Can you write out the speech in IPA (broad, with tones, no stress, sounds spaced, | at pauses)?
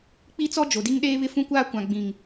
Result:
k͡p i˦ t͡s ɔ˦ d͡ʒ o˨ d i˦ ŋ ɗ eː˦ β ɪ˦ f ũ˦ kʷ aː˦ kʷ ã˨ ɡ͡b ĩ˨ ŋ